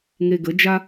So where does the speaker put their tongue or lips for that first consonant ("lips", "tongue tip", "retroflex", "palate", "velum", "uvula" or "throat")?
velum